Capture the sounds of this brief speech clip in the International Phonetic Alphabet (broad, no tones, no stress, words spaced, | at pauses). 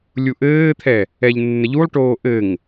lʲuʔɘːt̪ʰɛ | ɛʎnːəʎulˠʈoː ʔɘŋ